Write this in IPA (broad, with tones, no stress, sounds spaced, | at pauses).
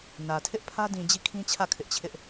n ä˨ tʰ ɪ˦ ʔ pʰ ä˦ d ĩ˨ d͡ʑ i˦˨ kʰ ĩ˦ t͡ɕʰ ä˦˨ kʰ ɪ˦ ʔ t͡ɕʰ ɪ˦ ʔ